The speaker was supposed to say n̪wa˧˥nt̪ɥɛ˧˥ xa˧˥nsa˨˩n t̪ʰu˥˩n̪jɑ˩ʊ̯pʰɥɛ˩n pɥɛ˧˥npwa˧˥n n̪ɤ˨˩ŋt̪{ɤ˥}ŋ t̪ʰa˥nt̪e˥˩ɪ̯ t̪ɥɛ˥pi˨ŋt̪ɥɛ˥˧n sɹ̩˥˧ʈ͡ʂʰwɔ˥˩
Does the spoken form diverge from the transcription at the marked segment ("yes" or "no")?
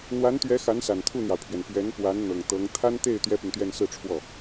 yes